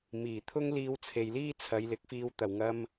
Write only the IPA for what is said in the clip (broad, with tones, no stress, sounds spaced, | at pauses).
m iː˨˩ t̪ʰ ʊ˥ ŋ l iː˧ w t͡sʰ e˨ j l iː˥ t͡sʰ ɐ˨˧ j l ɪ˨˥ k̚ f iː˧ w t̪ ɐ˨˩ w ŋ ɐ˧ m